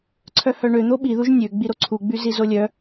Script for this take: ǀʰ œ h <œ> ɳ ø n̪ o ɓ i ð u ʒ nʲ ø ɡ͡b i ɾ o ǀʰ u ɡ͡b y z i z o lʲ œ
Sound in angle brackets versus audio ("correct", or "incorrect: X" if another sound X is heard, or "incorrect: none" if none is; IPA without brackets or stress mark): correct